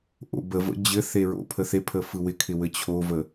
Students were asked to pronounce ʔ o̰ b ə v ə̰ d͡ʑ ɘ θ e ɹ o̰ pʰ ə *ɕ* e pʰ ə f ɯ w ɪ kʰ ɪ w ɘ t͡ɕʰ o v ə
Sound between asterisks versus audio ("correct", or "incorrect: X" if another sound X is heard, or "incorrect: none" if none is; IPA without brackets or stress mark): incorrect: θ